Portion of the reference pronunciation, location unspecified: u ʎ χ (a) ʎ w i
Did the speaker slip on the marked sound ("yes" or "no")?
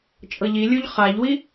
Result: no